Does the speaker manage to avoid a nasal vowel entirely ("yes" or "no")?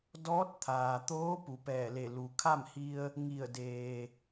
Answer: yes